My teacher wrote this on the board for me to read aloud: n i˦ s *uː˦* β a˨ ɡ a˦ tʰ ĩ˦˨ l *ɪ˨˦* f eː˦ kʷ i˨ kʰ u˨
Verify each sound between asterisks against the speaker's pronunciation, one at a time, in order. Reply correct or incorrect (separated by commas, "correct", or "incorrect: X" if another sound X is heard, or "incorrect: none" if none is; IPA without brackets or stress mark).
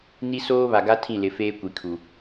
incorrect: oː˦, correct